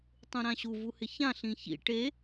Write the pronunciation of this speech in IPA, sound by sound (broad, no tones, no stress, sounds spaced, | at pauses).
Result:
tˤ ũ ɾ ã ɕ u v u h ɪ ç ã ɬ ĩ ç ḭ ʈ e